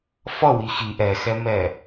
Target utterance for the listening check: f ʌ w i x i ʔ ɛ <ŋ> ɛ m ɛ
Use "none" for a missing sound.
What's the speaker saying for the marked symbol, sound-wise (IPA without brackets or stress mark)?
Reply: x